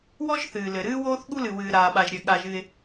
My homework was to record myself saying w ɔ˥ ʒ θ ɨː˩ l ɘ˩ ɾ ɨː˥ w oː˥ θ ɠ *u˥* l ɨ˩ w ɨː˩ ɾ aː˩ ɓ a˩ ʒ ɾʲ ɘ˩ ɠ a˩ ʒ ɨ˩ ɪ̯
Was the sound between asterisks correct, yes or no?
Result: yes